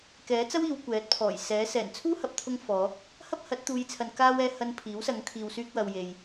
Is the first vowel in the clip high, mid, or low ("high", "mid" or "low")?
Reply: mid